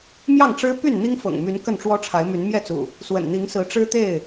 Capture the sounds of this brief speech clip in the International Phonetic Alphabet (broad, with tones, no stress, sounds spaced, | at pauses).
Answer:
m j ɑ˥˨ ŋ ʈ͡ʂ ɻ̩˦ p y˥˨ n n̪ i˦ ŋ f ɤ̰˨˩ ŋ m y˨˦ n k ə˥˨ n ʈ͡ʂ w ɔ˦ ʈ͡ʂʰ a˨˦ ɪ̯ m y˨˦ n m j ɛ˥˨ t͡s ṵ˨˩ | s w ə̰˨˩ n n̪ i˨˦ ŋ s ɹ̩˨˦ ʈ͡ʂ ɻ̩˦ t̪ e˥˨ ɪ̯